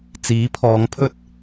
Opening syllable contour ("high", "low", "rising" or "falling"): rising